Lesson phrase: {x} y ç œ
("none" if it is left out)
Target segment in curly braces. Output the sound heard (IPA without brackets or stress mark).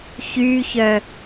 ç